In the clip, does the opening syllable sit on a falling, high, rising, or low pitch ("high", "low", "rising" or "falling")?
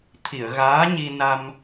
low